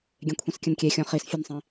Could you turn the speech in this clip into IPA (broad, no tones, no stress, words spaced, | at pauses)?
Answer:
ɡʲẽkʷʰĩskʲə̃nkʲe xʲɔ̃χis fʲənsˤĩ